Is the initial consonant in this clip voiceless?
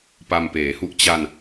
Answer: yes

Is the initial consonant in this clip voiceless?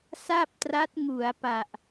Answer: yes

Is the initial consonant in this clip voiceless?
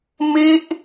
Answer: no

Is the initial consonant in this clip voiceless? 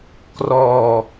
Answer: yes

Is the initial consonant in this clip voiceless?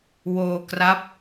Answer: no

